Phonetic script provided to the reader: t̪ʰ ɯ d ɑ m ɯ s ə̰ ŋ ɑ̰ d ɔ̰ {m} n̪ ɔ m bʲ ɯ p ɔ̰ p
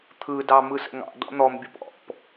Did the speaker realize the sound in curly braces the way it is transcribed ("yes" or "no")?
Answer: no